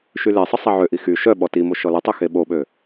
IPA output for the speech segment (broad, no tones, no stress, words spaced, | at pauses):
ʃylesˤə sˤɛʕøʔi xy ʃœɓɔ timo ʃɔlətˤø xeɓoɓø